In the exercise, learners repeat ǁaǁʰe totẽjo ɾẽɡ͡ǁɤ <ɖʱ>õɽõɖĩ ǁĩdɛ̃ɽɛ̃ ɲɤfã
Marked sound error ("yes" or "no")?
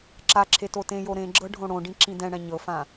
no